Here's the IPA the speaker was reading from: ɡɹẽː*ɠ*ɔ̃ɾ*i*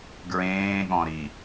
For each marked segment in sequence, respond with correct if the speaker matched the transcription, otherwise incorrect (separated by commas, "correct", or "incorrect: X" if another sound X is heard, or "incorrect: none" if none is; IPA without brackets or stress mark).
correct, correct